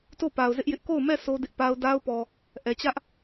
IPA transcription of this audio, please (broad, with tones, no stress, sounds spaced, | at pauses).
t o˦˨ p a˨ ʊ̯ z ɪ˦ ʔ j ɪ˦ ʔ k o˦˨ ʊ̯ m ɛ˦˨ s o˦ d ɪ˦ ʔ p a˦ ʊ̯ d a˦ ʊ̯ p ɔ˨ | ʔ ɛ˨ t͡ɕ ä˦ ʔ